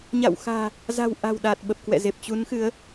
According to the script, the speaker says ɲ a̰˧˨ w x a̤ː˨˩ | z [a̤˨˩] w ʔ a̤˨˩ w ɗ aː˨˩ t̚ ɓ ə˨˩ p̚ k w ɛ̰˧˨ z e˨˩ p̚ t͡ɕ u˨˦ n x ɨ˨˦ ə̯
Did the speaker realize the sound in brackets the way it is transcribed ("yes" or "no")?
yes